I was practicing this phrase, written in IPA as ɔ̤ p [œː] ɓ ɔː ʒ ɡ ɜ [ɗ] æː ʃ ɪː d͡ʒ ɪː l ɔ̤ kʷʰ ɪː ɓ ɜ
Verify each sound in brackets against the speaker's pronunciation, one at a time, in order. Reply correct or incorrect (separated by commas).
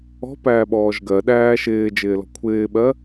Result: incorrect, correct